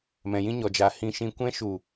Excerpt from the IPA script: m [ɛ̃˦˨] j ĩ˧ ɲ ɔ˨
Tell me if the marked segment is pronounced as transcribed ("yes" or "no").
no